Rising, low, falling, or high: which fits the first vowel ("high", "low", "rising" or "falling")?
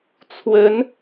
rising